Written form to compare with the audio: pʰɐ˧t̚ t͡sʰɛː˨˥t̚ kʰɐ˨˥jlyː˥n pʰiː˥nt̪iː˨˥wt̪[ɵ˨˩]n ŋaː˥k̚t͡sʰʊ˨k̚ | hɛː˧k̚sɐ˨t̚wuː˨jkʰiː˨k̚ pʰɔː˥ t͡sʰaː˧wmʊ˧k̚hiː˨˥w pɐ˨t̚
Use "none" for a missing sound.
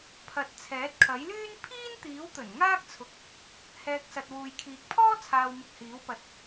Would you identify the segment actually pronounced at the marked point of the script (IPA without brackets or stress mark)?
ɵ˨˩